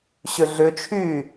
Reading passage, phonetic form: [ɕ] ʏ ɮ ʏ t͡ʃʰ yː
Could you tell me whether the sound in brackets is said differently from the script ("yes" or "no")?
no